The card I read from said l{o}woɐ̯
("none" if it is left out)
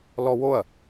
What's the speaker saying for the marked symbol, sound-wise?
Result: ɔ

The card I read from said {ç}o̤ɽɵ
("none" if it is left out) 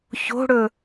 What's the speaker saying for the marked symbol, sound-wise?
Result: ç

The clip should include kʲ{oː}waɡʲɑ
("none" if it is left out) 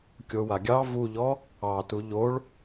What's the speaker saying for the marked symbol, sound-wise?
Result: o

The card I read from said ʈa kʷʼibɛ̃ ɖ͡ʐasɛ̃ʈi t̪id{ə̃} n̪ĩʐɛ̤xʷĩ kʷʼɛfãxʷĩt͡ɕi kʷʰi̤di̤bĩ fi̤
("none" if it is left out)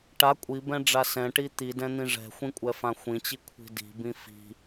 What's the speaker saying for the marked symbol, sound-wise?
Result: ɛ̃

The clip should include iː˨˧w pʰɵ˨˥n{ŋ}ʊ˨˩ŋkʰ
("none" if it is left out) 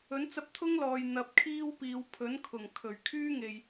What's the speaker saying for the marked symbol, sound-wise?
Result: kʰ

